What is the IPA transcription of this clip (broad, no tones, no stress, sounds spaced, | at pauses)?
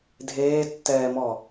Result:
dʱ eː tː ɛː m ɔ